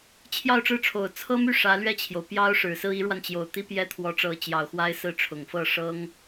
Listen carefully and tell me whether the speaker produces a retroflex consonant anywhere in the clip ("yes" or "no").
yes